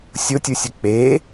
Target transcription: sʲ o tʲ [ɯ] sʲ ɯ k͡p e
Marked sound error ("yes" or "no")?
yes